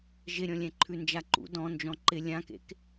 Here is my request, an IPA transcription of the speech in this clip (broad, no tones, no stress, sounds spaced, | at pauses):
ʒ ɪ ɾʲ ɔ̃ lʲ ɛ̃ ǃʰ ʉ n d͡ʒ a ǃ ṵ d ɔ̃ n d͡ʒ ɔ̃ ǃ ɪ lʲ ã k ḛ k